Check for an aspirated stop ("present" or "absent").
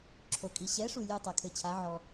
present